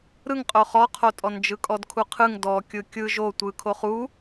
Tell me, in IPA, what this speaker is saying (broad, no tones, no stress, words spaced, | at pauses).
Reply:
ɾɯŋqʼo χɔqʰotʼɔn d͡ʒɯkʼɔdkʰuqʰɯŋ dɔ kʲɯkʲɯ ʒo tʷɯ kʰoχu